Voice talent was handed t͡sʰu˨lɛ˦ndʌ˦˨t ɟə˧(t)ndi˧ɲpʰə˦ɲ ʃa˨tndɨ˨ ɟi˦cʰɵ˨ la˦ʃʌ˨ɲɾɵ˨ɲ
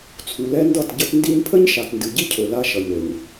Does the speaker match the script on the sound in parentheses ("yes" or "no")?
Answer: yes